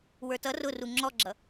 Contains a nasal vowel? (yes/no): no